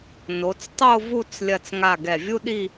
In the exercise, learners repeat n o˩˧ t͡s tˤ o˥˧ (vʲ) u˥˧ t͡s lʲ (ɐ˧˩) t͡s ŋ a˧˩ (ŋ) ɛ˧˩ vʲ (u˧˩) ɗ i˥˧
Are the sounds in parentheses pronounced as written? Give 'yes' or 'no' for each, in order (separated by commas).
no, yes, no, no